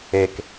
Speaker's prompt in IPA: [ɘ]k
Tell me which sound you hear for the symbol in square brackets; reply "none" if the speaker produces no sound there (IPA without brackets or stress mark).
e